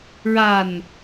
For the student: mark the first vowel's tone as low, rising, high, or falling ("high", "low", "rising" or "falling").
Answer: low